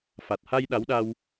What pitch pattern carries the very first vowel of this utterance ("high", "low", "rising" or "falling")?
low